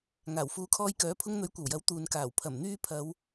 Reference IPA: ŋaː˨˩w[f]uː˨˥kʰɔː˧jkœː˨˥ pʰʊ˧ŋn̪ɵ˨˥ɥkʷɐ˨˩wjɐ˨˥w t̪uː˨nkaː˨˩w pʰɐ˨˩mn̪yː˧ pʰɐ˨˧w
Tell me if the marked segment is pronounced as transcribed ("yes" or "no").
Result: yes